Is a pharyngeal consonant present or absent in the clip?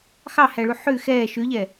present